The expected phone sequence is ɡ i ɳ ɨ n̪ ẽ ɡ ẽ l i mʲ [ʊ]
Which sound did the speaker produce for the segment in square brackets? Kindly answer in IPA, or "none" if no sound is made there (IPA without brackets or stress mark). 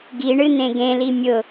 ʊ